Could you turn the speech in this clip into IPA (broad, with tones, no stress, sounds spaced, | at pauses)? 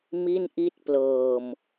m i˥˩ n ʔ i˥˩ t̚ p l ɤː˧ m